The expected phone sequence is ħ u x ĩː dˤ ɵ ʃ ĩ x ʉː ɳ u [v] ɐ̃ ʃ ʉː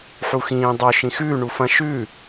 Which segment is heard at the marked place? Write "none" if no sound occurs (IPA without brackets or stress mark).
f